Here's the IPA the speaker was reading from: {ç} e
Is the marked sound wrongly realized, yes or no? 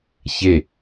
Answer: no